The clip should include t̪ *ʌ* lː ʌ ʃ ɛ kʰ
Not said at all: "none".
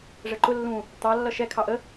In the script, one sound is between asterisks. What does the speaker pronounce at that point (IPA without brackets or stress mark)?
ɑ